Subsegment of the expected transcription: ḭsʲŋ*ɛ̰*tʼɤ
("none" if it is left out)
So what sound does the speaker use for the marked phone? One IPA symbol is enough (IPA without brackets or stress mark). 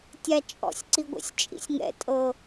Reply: ɛ̰